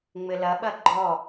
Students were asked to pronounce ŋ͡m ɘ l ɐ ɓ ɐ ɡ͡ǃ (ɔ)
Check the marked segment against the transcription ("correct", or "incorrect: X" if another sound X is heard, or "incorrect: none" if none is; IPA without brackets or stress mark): correct